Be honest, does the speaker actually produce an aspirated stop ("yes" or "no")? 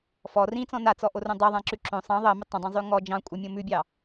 no